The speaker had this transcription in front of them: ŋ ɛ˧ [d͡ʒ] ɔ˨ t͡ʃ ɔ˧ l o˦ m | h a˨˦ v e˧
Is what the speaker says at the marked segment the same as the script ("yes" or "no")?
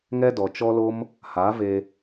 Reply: no